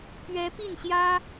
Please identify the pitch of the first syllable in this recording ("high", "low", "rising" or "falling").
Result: rising